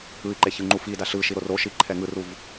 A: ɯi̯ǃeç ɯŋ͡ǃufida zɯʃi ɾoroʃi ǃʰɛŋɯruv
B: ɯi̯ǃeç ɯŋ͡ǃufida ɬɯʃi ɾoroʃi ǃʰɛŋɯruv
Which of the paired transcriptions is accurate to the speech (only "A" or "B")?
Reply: B